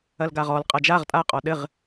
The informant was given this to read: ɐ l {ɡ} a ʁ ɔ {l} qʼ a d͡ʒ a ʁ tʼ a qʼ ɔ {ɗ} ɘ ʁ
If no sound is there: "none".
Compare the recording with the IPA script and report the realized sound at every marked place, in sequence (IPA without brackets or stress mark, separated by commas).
ɡ, l, ɗ